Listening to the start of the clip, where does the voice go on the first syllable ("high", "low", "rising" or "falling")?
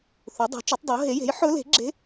rising